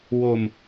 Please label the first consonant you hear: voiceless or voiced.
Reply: voiced